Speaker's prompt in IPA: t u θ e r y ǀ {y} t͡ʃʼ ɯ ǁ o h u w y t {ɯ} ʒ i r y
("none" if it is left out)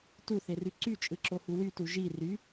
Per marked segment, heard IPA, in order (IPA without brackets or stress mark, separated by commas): y, u